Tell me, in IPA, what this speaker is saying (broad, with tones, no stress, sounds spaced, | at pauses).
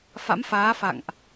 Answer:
f a̰˧˥ m f aː˨˦ f a̰˧˨ ŋ ʔ